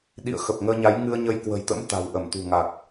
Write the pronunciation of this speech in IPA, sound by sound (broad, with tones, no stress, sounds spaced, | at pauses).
ɗ ḭ˧˨ ə̯ x ə˨˩ p̚ ŋ əː˧ ɲ a˨˦ j ŋ ɨ˧ ə̯ ɲ ə˧ j k w ə̤˨˩ j t̪ ə̰˧˥ m t̪ a̤˨˩ w ʔ ə˧˩ m t̪ ṳ˨˩ ŋ a˨˩ k̚